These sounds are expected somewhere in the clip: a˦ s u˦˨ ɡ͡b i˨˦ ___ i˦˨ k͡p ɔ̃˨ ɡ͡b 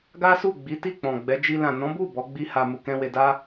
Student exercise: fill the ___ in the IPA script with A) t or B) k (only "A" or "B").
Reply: A